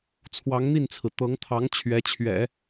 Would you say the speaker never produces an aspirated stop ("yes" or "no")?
no